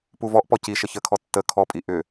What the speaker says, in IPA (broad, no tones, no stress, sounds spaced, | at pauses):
p u v ɔ ʔ p ɔ c i ʃ ə ç ə kʰ ɔ tː ə kʰ ɔ pʼ i ʔ ʏ